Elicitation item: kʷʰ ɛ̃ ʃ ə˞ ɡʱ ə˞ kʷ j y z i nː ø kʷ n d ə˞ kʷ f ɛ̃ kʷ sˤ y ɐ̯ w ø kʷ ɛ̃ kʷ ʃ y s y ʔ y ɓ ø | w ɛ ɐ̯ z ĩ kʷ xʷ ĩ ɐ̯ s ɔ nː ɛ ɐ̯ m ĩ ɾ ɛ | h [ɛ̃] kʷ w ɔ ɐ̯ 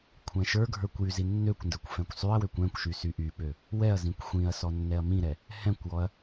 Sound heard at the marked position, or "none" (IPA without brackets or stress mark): ɛ̃